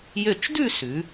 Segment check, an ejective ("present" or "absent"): absent